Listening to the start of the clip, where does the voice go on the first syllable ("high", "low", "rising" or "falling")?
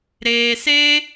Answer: low